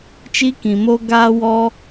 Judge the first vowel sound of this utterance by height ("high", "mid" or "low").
high